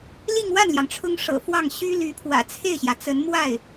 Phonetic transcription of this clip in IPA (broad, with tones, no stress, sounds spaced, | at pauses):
l i˥˧ ŋ w a˥˩ n l j ɑ˩ ŋ ʈ͡ʂʰ ʊ˥ ŋ ʂ ɤ̰˨˩ f w ɑ˥˩ ŋ ɕ y˥ l y˧˥ pʰ w ä̰˨˩ t͡sʰ e˥˩ ɪ̯ ɕ j ä˩ t͡s ə˧˥ n m w a˥˩ ɪ̯